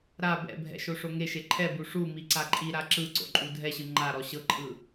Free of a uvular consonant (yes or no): yes